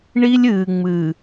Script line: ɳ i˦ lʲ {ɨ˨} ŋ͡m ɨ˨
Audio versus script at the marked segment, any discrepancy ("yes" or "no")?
yes